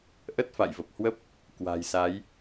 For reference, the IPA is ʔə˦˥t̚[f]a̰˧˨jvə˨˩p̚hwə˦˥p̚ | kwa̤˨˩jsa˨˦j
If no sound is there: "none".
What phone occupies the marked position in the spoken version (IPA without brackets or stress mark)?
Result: f